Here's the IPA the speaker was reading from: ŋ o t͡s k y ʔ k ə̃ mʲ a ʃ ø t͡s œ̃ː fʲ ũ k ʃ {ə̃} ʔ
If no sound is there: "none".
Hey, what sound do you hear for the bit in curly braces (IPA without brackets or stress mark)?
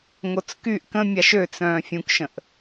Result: ə̃